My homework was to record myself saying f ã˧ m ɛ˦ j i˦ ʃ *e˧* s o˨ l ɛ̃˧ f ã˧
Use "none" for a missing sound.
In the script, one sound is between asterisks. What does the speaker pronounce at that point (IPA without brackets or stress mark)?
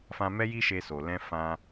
e˧